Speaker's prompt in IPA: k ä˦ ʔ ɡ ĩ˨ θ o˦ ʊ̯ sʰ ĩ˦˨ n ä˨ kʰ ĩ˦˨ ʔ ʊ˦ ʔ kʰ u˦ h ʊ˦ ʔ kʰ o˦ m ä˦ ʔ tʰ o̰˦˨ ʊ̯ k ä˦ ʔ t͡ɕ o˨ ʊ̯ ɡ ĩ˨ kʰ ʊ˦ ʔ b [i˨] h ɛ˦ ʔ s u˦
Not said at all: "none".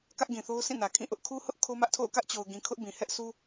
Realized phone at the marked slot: ĩ˨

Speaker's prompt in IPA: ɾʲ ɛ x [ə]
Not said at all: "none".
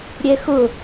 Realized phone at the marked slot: ʊ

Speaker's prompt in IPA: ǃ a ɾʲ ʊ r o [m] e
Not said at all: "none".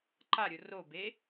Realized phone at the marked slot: b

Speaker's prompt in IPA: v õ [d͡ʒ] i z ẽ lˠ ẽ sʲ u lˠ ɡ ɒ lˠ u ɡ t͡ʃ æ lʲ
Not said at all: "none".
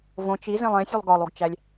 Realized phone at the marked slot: t͡ʃ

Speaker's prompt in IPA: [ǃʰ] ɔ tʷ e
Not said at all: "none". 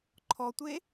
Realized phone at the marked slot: ǃʰ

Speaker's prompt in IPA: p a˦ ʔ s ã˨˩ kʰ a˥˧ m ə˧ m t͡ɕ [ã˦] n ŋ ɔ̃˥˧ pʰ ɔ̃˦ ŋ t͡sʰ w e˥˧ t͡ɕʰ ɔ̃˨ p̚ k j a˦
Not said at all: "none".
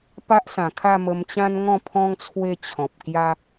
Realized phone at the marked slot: ã˦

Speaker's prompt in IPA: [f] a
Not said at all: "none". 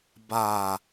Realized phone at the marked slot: b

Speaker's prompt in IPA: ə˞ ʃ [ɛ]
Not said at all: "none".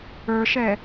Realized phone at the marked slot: ɛ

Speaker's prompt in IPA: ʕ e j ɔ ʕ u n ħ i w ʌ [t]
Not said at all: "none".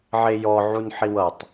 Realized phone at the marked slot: tˤ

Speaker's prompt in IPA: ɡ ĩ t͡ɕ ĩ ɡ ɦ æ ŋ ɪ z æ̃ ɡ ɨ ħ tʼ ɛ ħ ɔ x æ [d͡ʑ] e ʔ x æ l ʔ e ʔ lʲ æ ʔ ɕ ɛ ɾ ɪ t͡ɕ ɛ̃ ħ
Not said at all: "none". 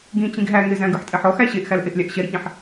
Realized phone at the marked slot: ɕ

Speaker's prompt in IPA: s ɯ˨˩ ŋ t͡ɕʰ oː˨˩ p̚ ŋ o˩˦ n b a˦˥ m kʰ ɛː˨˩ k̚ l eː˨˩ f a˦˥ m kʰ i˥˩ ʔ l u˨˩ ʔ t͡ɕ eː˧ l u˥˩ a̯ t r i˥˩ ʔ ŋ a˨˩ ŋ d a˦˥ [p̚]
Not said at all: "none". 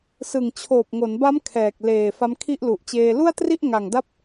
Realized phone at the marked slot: p̚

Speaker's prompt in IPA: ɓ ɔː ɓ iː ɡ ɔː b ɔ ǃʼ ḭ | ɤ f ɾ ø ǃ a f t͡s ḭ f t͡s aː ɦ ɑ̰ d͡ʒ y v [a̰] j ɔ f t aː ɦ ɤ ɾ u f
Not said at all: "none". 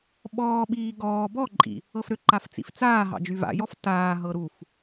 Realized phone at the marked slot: a̰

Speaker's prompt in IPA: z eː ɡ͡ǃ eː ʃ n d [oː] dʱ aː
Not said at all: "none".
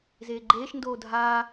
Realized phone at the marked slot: oː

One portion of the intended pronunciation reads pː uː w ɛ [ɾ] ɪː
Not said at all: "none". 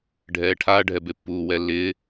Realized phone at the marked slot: lː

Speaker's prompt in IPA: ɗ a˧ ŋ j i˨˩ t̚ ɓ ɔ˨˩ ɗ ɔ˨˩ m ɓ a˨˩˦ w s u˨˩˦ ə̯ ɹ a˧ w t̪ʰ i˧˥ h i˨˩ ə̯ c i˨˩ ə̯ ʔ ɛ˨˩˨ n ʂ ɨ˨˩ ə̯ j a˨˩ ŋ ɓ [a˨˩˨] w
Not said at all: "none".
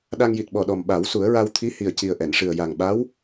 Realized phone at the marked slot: a˧˥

